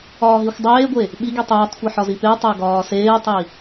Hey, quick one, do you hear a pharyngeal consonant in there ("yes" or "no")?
yes